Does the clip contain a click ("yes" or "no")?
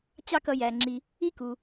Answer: yes